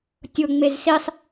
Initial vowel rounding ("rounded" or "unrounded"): rounded